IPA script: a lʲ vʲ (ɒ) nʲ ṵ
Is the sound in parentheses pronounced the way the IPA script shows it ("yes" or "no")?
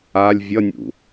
no